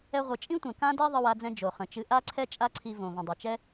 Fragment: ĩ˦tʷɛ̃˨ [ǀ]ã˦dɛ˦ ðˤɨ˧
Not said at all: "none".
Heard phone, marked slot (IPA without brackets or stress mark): k